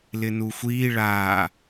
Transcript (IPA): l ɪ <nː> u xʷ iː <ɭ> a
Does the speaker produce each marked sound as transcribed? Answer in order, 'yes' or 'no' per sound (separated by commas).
no, yes